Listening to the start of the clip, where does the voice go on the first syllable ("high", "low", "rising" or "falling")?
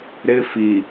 high